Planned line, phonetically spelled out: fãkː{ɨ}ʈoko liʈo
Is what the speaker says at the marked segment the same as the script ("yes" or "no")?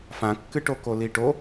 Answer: yes